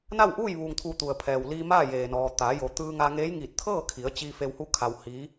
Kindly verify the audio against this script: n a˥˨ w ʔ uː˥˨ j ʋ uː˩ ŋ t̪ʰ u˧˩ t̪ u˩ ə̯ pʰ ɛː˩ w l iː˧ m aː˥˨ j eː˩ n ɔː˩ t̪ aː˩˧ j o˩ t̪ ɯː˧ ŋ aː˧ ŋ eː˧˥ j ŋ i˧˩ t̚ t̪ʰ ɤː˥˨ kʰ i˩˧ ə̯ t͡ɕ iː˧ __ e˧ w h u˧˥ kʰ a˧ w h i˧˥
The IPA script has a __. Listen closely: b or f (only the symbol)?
f